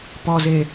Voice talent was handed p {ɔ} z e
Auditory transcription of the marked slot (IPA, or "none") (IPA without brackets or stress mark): ɔ